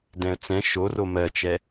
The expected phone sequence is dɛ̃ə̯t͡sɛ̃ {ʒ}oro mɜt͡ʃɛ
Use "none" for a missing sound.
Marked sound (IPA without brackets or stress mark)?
ʃ